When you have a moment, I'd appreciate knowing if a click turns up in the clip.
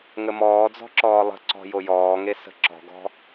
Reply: yes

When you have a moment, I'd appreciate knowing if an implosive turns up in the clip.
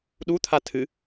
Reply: yes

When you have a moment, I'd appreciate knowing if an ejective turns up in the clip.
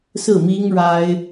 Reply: no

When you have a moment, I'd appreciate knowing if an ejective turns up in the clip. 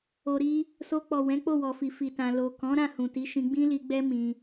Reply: no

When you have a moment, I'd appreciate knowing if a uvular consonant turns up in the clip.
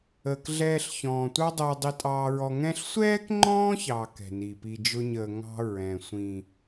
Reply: no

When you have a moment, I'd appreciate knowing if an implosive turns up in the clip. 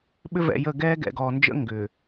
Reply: yes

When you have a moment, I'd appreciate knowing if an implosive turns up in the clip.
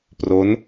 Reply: no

